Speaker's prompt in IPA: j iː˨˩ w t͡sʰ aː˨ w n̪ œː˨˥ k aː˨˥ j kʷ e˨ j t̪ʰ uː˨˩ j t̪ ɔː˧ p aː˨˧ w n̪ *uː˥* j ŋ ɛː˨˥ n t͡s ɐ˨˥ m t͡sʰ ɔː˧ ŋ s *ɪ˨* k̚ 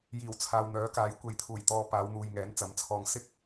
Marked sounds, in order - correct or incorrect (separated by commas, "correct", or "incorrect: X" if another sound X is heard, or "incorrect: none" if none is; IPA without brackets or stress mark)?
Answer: incorrect: uː˨, incorrect: ɪ˥